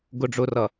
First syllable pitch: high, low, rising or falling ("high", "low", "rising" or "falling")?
low